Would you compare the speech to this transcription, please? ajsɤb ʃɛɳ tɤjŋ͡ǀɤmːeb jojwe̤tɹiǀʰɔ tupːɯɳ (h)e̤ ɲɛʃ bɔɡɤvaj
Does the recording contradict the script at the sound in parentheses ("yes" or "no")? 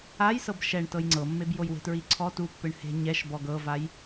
no